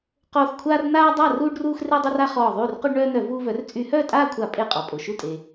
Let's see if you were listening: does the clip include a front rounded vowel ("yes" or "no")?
yes